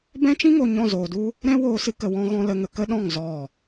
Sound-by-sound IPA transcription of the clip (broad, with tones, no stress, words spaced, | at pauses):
bɛ̃˦t͡ʃĩ˦ŋo˨ ɲɔ̃˦˨zoː˨du˦ | ɾɛ̃˦ woː˧sɨ˧kə˨ wɔ̃˧ɣɔ̃˧ lə˧ŋə˧ kə˦ɗɔ̃˦˨ŋ zɔ˦˨